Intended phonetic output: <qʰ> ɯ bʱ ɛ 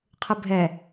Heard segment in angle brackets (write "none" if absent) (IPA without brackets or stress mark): qʰ